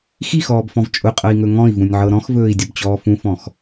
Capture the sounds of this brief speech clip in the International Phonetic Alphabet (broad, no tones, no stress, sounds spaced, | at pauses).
x i x ɔː b f ɔ̃ v t͡ʃʼ ʊ qʼ ɤ i̯ ŋ ɵ ŋ ɔ̃ i̯ v ũ nʲ ʕ ɤ ɾ ɔ̃ x v ɵː i̯ dʲ ʊ b t͡ɕ ɔː f ũ f ɔ̃ x